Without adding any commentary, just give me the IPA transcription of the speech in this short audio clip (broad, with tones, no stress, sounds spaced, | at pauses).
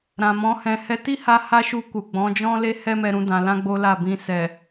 ɾ ã˨ m ɔ̃˨˦ h ɛ̃˧ h ɛ˦ t i˦ h a˧ h a˧ ʃ u˧ k u˨ ɡ͡b ɔ̃˨˦ d͡ʒ ɔ̃˦ l e˦ h ɛ˦ m ɛ˧ ɾ ũ˧ d ã˨ l ã˧ ɡ͡b o˦ l a˦˨ b ĩ˧ s ɛ˨